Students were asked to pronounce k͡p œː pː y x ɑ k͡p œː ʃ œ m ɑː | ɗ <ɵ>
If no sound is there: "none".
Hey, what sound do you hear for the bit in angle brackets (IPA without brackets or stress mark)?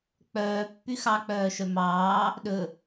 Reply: ɵ